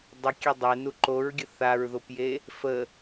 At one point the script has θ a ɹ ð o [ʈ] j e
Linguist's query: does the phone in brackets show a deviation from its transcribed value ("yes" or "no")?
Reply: yes